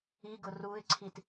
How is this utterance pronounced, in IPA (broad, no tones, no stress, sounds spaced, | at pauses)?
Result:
i ɡ ʊ r u ɪ̯ ǀʰ i t